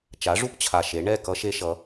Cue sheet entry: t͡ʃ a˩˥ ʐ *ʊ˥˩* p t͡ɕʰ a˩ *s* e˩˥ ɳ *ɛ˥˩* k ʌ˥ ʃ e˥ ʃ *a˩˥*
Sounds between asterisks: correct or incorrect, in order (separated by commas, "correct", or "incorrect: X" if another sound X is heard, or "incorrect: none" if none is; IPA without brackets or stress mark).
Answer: incorrect: u˥˩, incorrect: ʃ, correct, incorrect: ʌ˩˥